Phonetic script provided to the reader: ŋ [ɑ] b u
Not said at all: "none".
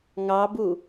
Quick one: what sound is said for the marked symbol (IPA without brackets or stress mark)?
ɑ